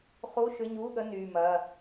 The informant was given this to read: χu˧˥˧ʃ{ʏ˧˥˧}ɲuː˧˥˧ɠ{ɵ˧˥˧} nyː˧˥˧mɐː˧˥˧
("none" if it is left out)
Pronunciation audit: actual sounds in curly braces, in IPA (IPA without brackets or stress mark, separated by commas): ʏ˧˥˧, ə˧˥˧